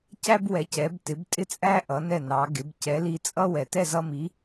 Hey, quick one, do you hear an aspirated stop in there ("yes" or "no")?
no